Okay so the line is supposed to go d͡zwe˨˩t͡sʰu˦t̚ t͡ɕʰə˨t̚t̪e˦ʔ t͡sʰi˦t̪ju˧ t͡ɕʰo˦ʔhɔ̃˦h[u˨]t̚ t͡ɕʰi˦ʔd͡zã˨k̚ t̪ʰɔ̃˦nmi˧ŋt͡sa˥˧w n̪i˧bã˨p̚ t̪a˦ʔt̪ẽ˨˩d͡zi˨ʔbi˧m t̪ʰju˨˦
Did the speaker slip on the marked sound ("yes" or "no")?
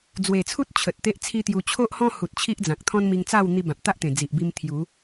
no